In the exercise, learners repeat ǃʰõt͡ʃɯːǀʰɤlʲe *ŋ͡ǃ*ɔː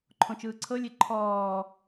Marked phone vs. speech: incorrect: ǃʰ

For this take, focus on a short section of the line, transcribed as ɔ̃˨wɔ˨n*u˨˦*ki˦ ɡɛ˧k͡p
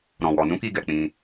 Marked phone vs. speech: incorrect: ũ˨˦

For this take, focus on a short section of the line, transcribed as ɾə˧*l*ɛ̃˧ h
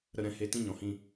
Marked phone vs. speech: incorrect: ɾ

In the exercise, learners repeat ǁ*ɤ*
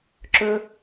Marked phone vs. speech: incorrect: ɵ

